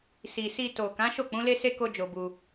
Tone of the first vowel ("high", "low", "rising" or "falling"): low